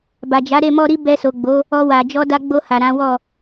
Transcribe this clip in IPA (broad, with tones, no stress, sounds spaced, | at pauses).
b a˨ d͡ʒ a˨˦ ɾ e˦˨ m ɔ˧ ɾ i˦ b ɛ˧ s o˨ ɡ͡b o˨˦ | ɔ˧ w a˨ d͡ʒ ɔ˧ d a˧ ɡ͡b o˧ h a˨ ɾ ã˨˦ w ɔ˦˨